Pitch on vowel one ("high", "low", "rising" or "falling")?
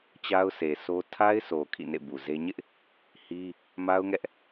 high